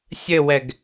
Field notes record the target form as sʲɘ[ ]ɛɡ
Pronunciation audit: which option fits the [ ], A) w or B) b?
A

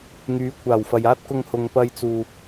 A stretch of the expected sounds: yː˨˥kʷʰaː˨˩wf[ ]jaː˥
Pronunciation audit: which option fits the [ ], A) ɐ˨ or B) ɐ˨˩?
A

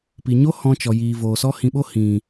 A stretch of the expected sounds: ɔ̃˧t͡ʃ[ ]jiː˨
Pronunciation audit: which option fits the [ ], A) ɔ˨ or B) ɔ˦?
A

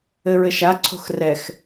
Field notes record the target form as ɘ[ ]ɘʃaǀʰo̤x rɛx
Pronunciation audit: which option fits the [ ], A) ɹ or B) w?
A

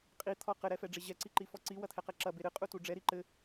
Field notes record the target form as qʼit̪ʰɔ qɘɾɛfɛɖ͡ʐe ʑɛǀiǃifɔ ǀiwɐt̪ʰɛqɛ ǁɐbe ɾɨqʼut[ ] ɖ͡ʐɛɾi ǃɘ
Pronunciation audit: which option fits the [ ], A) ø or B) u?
B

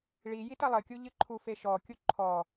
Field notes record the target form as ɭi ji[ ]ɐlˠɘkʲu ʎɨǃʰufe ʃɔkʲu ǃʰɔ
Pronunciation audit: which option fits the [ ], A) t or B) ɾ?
A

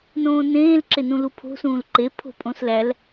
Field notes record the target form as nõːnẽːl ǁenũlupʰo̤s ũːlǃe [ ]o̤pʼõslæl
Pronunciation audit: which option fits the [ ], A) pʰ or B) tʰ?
A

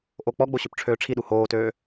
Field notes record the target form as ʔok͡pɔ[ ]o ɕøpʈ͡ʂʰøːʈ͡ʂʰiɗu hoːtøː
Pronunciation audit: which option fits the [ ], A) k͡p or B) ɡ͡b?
B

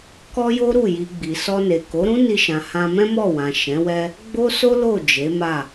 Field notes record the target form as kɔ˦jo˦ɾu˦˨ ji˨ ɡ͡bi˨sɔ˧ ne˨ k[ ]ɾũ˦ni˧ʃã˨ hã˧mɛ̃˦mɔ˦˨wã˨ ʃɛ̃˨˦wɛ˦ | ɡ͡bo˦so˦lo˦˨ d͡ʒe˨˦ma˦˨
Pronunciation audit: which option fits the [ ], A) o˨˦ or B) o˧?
A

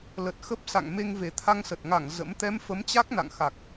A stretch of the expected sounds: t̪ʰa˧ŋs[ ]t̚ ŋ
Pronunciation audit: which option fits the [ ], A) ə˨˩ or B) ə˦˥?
A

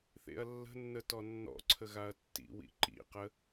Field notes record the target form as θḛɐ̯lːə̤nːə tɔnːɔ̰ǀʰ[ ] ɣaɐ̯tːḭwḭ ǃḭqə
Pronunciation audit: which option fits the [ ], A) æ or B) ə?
B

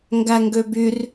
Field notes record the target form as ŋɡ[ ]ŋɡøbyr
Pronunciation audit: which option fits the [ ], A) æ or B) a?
A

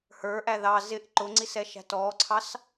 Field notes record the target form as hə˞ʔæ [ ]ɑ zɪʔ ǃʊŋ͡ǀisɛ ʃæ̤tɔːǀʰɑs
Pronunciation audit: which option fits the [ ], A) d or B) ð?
B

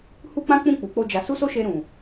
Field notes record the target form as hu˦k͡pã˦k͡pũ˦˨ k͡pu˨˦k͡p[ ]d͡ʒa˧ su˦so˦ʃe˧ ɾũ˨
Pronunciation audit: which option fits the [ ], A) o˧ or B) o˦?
B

